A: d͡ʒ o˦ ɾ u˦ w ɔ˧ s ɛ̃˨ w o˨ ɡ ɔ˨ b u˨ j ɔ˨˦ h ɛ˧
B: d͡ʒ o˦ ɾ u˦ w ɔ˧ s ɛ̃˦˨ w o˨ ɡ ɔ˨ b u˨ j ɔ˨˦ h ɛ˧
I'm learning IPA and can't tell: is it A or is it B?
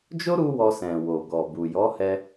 A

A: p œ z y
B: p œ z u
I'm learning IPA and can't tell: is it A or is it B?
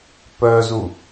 B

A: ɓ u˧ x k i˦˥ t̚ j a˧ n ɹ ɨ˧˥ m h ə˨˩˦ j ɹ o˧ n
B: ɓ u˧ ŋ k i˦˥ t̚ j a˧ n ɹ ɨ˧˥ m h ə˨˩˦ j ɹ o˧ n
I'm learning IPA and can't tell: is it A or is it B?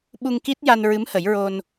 B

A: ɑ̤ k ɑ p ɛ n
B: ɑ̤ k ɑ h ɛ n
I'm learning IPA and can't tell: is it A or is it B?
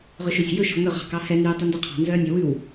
B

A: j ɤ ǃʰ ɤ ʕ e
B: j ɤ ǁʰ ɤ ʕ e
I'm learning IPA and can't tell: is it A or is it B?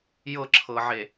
B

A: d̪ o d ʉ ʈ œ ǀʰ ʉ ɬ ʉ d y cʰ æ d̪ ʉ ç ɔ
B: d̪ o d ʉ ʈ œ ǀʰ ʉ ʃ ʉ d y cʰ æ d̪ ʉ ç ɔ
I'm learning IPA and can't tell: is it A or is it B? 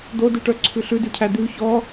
A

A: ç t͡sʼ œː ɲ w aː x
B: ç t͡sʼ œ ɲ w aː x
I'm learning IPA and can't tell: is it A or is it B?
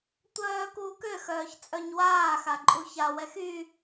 B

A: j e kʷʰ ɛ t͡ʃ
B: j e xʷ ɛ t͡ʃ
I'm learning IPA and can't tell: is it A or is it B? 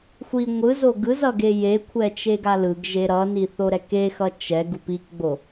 A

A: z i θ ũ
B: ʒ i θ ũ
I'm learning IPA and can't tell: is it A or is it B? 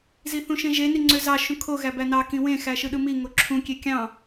A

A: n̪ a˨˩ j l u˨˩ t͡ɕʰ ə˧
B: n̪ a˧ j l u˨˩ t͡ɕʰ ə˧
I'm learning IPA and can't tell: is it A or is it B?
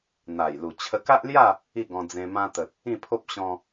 A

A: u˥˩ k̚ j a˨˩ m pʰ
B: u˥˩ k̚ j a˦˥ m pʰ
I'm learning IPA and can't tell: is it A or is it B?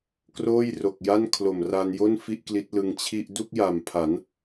A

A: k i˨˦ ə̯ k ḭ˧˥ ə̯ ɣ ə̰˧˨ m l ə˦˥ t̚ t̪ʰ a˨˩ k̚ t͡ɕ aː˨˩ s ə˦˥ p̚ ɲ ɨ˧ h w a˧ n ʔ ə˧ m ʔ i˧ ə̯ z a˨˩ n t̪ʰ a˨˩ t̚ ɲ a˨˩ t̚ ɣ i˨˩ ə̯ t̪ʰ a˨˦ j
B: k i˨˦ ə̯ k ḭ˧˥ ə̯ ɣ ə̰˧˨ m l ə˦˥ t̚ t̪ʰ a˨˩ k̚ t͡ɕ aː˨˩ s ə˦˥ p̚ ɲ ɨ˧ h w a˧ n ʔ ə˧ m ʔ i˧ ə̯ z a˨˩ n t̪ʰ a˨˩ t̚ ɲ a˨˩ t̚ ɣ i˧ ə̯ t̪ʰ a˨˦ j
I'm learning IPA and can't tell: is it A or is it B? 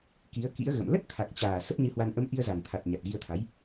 B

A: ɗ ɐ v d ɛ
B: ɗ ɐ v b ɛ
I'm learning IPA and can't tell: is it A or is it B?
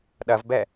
B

